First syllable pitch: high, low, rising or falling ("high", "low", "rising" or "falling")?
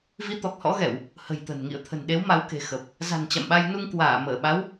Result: rising